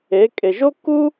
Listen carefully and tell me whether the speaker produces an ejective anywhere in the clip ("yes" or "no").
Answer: yes